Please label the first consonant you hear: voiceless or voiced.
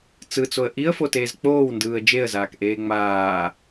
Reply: voiceless